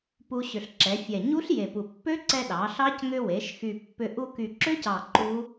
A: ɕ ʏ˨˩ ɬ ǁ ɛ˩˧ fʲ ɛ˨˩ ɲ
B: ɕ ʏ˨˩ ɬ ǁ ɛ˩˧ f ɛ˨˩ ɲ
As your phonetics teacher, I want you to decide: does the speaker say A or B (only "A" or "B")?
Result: A